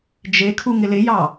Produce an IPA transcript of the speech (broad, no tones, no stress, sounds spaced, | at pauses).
d͡ʒ e kʰ u ŋ ɪ l ɪ j ɑ